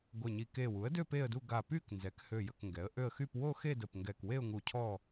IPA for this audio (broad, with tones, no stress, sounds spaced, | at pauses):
ɡʷ e˧˩ ɲ i˧˩ k e˧˩ w u˩˥ ə̯ d ø˥˧ p e˥˧ ə̯ d u˥˧ ɡ a˧˩ p y˥˧ k n z ɛ˩˥ k h ø˧˩ j ə˧˩ k ŋ ɡ ɛ˩˥ ə̯ ʔ ø˥˧ ə̯ x y˥˧ p w o˥˧ x e˥˧ d ə˧˩ p ŋ ɡ ɛ˧˩ k w e˥˧ ʊ̯ ŋ u˧˩ cʰ ɔ˥˧